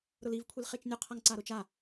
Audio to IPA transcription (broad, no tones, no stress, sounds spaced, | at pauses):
ɾ ʊ l i v kʷʰ i l χ e t͡ʃ nʲ ʊ qʰ a ŋ ǀ a ɾ ʊ t͡ʃ a